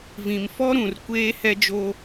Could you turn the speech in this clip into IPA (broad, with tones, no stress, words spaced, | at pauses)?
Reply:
vĩ˨mfɔ˦ ɾũ˨r kʷeː˦ hɛ˦d͡ʒoː˦